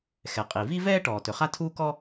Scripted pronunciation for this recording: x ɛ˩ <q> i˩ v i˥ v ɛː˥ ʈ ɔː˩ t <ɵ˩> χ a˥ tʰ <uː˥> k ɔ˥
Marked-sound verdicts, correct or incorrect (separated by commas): incorrect, correct, correct